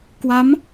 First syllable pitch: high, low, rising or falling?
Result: rising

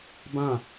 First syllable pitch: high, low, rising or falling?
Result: falling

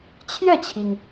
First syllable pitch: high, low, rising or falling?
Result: falling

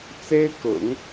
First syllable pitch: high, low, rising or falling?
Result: high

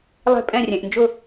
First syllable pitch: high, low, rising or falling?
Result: falling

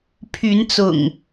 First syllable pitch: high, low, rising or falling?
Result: rising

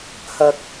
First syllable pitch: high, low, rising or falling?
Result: low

